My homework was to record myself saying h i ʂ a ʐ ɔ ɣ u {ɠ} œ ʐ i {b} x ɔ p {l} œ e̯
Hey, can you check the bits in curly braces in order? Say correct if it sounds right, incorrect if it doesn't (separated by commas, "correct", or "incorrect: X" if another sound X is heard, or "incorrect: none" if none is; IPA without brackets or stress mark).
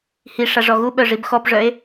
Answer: incorrect: ɓ, correct, incorrect: ʐ